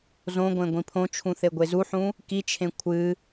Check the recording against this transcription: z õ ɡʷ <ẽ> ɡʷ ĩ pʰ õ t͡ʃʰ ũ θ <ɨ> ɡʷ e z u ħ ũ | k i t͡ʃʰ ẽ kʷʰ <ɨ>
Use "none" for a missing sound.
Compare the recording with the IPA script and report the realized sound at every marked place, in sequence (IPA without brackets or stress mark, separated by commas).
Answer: ẽ, e, ɨ